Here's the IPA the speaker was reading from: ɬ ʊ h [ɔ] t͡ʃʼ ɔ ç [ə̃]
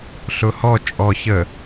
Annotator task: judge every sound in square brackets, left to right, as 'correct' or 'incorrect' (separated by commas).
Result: correct, incorrect